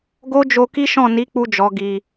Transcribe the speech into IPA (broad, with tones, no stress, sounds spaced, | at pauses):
ɡ o˦ d͡ʒ o˧ k i˦ ʃ ɔ̃˦˨ n i˨˦ k͡p u˧ d͡ʒ ɔ˨ ɡ i˨